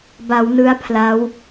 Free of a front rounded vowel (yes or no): yes